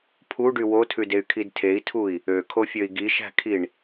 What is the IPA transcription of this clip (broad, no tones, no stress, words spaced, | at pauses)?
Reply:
pʰuɖy wotʰʉdey̯kʰid tʰei̯tʰui̯ | økʰofʲøi̯ ɡiʃæ̤kʰiɳ